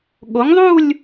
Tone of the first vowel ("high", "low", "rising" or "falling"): rising